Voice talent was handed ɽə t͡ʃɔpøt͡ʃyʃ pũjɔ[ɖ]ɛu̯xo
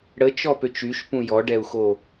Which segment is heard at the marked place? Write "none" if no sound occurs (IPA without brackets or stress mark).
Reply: ɖ